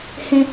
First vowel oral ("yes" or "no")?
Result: no